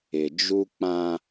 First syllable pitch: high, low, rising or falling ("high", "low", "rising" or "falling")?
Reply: low